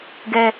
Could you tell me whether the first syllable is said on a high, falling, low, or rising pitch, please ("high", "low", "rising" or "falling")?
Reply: high